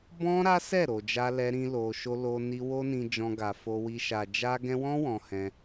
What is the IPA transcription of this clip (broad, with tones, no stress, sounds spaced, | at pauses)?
b ɔ̃˦ ɾ a˦ s ɛ˦˨ ɾ o˨ d͡ʒ a˧ l ɛ˧ ɾ ĩ˦ l o˧ ʃ o˦ l o˧ n i˧ w o˦ n ĩ˧ d͡ʒ ɔ̃˧ ɡ a˨ f o˧ w i˧ ʃ a˨ d͡ʒ a˧ ɡ ɛ̃˧ w ɔ̃˦ w ɔ̃˧ h ɛ̃˧